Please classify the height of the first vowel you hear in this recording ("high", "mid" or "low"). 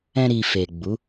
mid